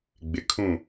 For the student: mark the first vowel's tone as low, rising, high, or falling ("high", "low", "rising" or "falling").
low